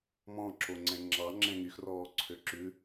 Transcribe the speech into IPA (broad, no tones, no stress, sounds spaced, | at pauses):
m ɔ̃ ǁ o ŋ͡ǀ ɛ̃ ŋ͡ǁ ɑ ŋ͡ǁ ɛ̃ ŋ y x r ɔː ǀʰ ø ǁ ʉ